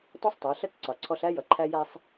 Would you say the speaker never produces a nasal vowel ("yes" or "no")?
yes